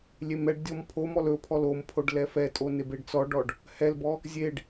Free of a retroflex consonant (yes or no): no